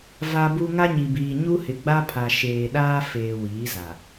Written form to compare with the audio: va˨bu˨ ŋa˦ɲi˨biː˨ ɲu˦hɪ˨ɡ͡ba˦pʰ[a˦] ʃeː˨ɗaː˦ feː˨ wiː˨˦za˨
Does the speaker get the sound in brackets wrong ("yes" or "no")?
yes